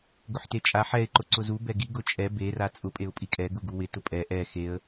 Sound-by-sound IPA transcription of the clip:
ɡ ʊ ħ t e t͡ʃʼ a ħ ɛ ɪ̯ ǃ ʊ ǀ ʊ z u b ɛ ɡ i ɡ ʊ t͡ʃʼ ɛ b e r a t͡sʼ ʊ pʼ e ʊ̯ pʼ i kʼ ɛ ɡ u ɡ u w ɪ t ʊ pʼ ɛ ʔ ɛ x e ə̯

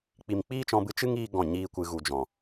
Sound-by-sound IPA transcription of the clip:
k͡p i˨ m k͡p iː˦ t͡ʃ ɔ̃˧ b ɨ˧ t͡ʃ ɨ˦ ŋ iː˧ ɡ ɔ̃˦˨ ɲ iː˦ kʷ ɨ˧ ɣ u˨ d͡ʒ ɔ̃˨

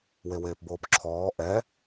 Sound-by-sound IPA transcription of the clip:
w e w eː p b oː p ǁʰ ɔː ʔ ɛ

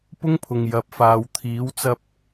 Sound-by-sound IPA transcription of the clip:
p ʊ˥ ŋ pʰ ʊ˨ ŋ j ɐ˨˥ p̚ f aː˨ w t̪ʰ iː˨˥ w t͡s ɐ˧ p̚

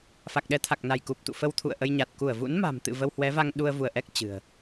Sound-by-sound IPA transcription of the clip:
f a˨˩ k̚ ɗ ɛ˨˦ t̪ʰ a˨˩ k̚ n a˧˩ j k u˨˩ p̚ t̪ ṵ˧˨ f ə˧ w t̪ʰ ṵ˧˨ ə̯ ʔ ə˧ j ɲ a˨˩ t̚ k u˧˩ ə̯ v ṵ˧˥ n m a̤˨˩ m t̪ ɨ̰˧˨ v ə˧ w h w ɛ˨˦ v a˧ ŋ ɗ u˧ ə̯ v u˧˩ ə̯ ʔ ɛ˦˥ k̚ t͡ɕ ɨ̤˨˩ ə̯

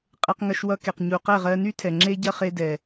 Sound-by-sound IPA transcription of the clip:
qʼ e˧ q ŋ ɐ˧ ʃ w ʌ˧ k e˨ q ɲ u˨ q ɛ˦˨ ʁ ɜ˧ n y˦ tʰ ɛ˨ ŋ͡ǁ e˦ ɟ ɐ˦ χ e˧ d ɛ˨

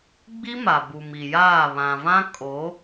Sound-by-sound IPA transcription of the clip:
ɡ͡b i˦ m a˨ b u˨ m i˨ j aː˦˨ β ã˨ v ã˦ kʼ o˨˦

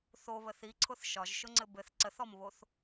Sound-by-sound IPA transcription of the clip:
θ o β ə θ i ǀʰ ʊ θ ʃ ɒ ʒ ʃ ʊ ŋ͡ǀ ɘ b ɘ θ ǀ ə θ ɔ m β o θ

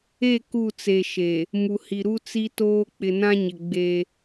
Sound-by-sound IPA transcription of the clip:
e˦˨ k u˦˨ t͡s e˨ ʃ e˨ | m u˨ h i˨ ɾ u˦ t͡s i˦ t oː˦ k͡p ɪ˨ n ã˦ ɲ ɪ˨ ɡ͡b e˦

